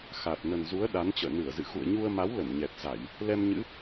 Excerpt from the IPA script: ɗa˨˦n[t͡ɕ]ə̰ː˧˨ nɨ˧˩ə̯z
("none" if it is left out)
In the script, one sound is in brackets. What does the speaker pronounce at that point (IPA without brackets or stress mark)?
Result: t͡ɕ